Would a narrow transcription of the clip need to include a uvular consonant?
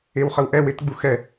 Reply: yes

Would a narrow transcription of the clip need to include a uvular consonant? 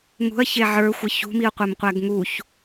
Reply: yes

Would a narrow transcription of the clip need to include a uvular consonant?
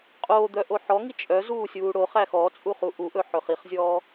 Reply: yes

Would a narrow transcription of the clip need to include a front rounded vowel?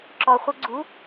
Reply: no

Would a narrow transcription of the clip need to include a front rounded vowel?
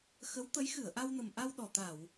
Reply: no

